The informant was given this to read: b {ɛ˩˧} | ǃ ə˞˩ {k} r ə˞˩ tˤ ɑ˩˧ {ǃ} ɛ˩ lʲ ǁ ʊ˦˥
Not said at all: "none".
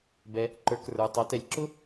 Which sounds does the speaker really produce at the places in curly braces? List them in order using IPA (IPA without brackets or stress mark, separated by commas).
ɛ˩, k, t